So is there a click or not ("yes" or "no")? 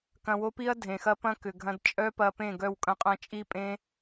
no